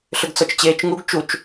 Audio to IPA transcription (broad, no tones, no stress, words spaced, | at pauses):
ɬʏɡt͡sɔt͡ʃt͡ɕeːt͡ʃŋuɡ t͡ʃut͡ʃ